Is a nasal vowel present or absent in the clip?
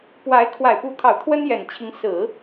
absent